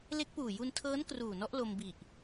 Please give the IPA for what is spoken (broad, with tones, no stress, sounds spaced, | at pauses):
l e˦˥ k̚ p uː˨˩ j u˧ n tʰ ɤː˦˥ n k r uː˨˩ n ɔ˦˥ ʔ l o˧ m b i˨˩ ʔ